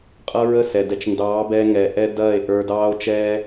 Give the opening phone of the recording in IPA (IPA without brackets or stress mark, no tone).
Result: qʼ